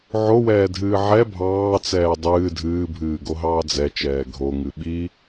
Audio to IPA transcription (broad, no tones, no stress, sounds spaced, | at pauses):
ʕ o w ɛː dʱ ɨː ʕ ɛ bʱ ɑː t͡s ɛː dˤ ɨː dʱ ɨː bʱ ɨː ɡ o ɦ ɑː d͡z ɛ t͡ʃ ɛː ɡʱ o ŋ ɨ ɓ i